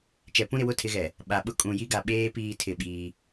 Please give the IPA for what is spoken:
t͡ʃ ɛ˨ p ũ˦ ɾ ɪ˨ w ʊ˦ tʰ ɪ˨˦ ɣ ɛ˨ | ɓ a˨ ɓ ʊ˦ kʼ ũ˨ j i˦ ɡ a˨ ɓ eː˦ p iː˦ tʰ ɪ˦˨ ɓ iː˦

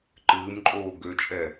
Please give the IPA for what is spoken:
ǃ ɨː m ǃʼ oː ɡ ø t͡ʃʼ ɛ

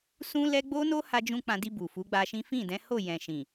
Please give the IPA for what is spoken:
s ũ˦ l ɛ˦ ɡ͡b o˦ n o˦ h a˧ d͡ʒ ũ˧ k͡p ã˧ d i˧ b u˨ f u˨˦ ɡ͡b a˧ ʃ ĩ˦ f ĩ˦˨ d ɛ̃˨˦ h o˦˨ j ɛ̃˨ ʃ ĩ˨

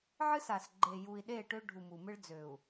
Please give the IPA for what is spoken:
ʕ ɨ˦ s a˨ s ɡ͡ǃ e˨ j u˨ i̯ ɗ e˦˨ ʈ ø˦ ɖʱ u˨ m u˨ m ɨ˦ ɭ d͡z ø˨ u̯

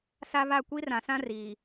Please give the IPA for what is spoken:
s a˦ β a˦˨ kʷ i˦ r ã˨ s ã˦ r iː˨

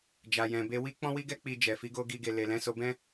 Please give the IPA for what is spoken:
d͡ʒ a˨ j ɛ̃˨ b e˧ w i˦ k͡p ɔ̃˦ w i˦ ɡ ɛ˦ k͡p i˧ d͡ʒ ɛ˨ f i˨˦ ɡ o˦ ɡ i˧ ɡ e˨ l e˨ l ɛ̃˨˦ s o˧ b ɛ̃˦

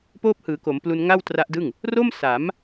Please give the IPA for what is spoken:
p oː˦˥ p̚ h ɯː˩˦ k o˩˦ m p l u˧ n ŋ a˥˩ w t r a˦˥ ʔ d ɯ˥˩ ŋ | r o˥˩ m s a˩˦ m

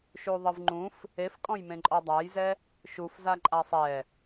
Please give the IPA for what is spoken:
ʃ u ðˤ ɨ v ŋ͡ǃ ũ f | e f kʼ ɔ̃ j m ẽ ǃʼ ɔ dˤ a j z ɛ | ʃ u f z a ǃʼ a sˤ ɛ

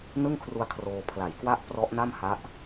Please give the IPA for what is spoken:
n ɯ˥˩ ŋ kʰ r u˧ a̯ kʰ r oː˧ pʰ l a˨˩ j k w a˥˩ ʔ p r ɔ˦˥ ʔ n a˥˩ m h a˦˥ ʔ

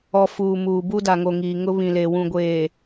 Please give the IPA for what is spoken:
ɔ˨ f uː˨ m uː˨ b u˦ d a˨ ŋ o˨ ŋ iː˨ ŋ ʊ˦ β ĩ˨ l e˨ w ũ˨ ɡʷ eː˨

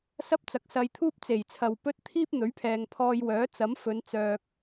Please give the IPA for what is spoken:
s ɐ˥ p̚ t͡s ɐ˨˥ k̚ s ɐ˧ j t̪ʰ uː˥ p̚ t͡s e˨˩ j t͡sʰ ɐ˨ w p ɵ˥ t̚ t̪ʰ iː˥ p̚ n̪ ɵ˨˥ ɥ pʰ ɛː˨ ŋ pʰ ɔː˧ j w œː˨˥ t͡s ɐ˨˥ m f ɵ˨˧ n t͡s œː˨ k̚

